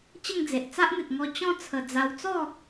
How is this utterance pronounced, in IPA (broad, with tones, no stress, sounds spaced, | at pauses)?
t͡ɕ ə˥˧ ŋ d͡z e˨ ʔ t͡s a˦ ʔ n̪ e˨ t̚ ŋ ɔ˧ t͡ɕ ɔ̃˥˧ t͡sʰ ə˨˩ d͡z a˧ w t͡s ɔ˥˧